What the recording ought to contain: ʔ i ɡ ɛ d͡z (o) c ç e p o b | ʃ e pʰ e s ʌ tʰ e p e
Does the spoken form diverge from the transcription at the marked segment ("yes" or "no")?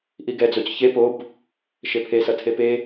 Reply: no